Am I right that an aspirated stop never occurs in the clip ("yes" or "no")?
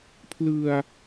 no